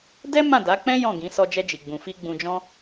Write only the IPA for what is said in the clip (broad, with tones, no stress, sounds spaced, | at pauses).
d ɛ˦ m ã˦˨ d a˨˦ k͡p ɛ̃˦ j ɔ̃˦˨ ɡ ĩ˨˦ s ɔ˧ d͡ʒ ɛ˧ d͡ʒ i˨ ɡ͡b ũ˨ f i˧ ɡ͡b ũ˧ d͡ʒ ɔ̃˦